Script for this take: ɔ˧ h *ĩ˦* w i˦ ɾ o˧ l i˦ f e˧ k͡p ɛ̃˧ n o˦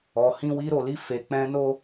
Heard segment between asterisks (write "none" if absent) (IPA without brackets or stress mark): ĩ˦